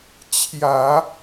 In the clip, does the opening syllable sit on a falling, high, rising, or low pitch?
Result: low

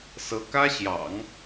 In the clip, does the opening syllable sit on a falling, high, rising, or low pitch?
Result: rising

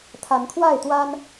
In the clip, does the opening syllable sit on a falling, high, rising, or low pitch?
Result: rising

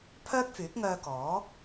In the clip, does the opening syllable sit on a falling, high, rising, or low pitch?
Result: high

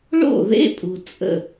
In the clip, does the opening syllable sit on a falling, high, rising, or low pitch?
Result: falling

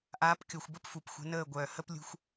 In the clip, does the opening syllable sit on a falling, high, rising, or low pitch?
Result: rising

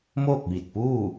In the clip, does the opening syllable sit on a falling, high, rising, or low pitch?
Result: falling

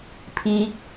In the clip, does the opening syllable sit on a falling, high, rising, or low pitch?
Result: rising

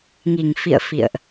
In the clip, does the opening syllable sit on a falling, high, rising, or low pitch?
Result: low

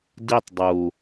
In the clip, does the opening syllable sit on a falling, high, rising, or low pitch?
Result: falling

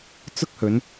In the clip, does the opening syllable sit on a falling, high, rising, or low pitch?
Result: high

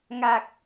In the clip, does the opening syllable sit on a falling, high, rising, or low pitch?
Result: low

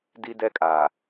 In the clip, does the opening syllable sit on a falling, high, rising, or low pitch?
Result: high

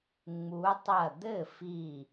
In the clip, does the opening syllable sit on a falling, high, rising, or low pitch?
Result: rising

